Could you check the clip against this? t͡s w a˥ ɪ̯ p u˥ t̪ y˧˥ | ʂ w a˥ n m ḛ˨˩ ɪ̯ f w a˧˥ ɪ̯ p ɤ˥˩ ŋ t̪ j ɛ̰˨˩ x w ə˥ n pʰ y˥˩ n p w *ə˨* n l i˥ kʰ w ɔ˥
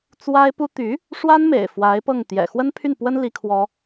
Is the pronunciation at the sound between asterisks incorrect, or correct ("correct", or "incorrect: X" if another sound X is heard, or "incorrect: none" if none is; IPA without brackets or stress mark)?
incorrect: ə˥